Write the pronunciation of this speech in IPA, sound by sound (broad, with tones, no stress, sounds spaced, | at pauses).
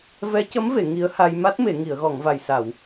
v ɛ˧˥ c ə˧˥ m v e˨˩˨ ŋ i˧˥ ə̯ h a˧ j m a˦˥ t̚ m e˨˩˨ ŋ i˨˩˨ ə̯ ɣ ɔ˨˩˨ ŋ v a˨˩ j s a˨˩˨ w